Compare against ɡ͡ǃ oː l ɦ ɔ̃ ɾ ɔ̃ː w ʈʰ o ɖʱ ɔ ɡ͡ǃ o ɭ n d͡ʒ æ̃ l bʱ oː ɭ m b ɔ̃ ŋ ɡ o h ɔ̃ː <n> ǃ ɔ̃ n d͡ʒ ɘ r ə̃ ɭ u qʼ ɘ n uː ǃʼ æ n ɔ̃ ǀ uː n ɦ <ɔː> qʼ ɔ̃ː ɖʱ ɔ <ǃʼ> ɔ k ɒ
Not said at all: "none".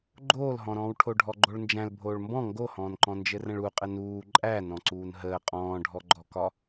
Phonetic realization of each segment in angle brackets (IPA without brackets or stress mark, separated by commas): n, əː, ɡ͡ǃ